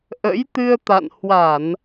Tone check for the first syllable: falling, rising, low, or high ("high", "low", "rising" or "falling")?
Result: rising